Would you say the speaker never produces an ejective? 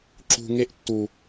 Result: yes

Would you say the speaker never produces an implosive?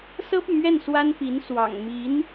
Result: yes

